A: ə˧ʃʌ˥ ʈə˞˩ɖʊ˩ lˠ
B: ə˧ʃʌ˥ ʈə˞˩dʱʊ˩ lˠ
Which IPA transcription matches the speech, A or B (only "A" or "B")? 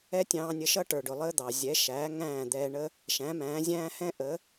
A